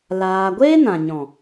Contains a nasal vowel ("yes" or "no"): yes